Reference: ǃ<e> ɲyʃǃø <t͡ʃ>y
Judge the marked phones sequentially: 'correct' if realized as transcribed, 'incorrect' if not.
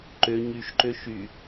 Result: incorrect, incorrect

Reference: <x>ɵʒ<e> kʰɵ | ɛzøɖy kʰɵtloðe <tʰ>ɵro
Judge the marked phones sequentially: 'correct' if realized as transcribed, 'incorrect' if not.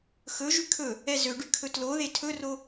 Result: correct, incorrect, correct

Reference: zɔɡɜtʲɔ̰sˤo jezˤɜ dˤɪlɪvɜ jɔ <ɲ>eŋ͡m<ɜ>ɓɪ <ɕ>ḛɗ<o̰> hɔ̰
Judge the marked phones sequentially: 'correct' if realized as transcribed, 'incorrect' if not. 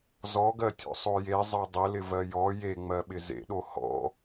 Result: incorrect, correct, incorrect, incorrect

